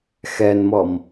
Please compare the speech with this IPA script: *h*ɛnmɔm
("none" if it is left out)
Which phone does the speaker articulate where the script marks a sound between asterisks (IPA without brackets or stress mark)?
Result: x